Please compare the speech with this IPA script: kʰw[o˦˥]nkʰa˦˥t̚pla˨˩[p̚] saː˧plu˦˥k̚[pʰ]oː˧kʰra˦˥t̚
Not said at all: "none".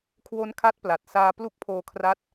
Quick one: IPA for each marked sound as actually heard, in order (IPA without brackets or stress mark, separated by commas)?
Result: o˦˥, t̚, pʰ